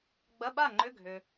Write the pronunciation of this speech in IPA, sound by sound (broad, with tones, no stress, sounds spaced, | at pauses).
ɡ͡b ɐ˧˥˧ ɓ a˥˨ ŋ͡ǃ ʏ˧˥˧ ɡʱ ʏ˨